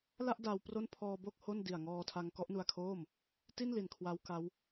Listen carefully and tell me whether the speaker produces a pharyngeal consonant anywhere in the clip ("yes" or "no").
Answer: no